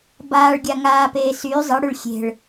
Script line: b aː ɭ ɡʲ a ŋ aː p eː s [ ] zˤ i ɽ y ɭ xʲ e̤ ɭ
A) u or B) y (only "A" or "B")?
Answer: B